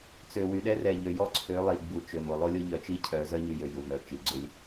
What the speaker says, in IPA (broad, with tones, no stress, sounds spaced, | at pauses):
t͡s ø˨ w y˨ ɗ ɛ˦ r ɛ˨ ʎ ø˨ j ɔ˦ ǀʰ ø˨˦ lˠ i˨ ɡ͡b u˨ t͡ʃ ø˨ m o˨ lˠ o˦ lʲ o˦ ʎ œ˨ t͡ʃ i˦ cʰ œ˨˦ z œ˦ ɲ y˨ j ø˨ j u˨ m œ˨ t͡ʃ i˨ ɡ͡ǀ ø˦ lʲ